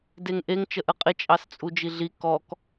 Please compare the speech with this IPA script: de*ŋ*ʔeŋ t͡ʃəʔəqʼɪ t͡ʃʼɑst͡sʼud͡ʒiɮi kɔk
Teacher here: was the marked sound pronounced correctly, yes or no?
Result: yes